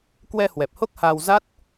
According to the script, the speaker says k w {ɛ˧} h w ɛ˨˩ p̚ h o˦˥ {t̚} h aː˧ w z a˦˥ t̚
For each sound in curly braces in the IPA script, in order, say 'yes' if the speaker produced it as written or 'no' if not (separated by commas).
yes, no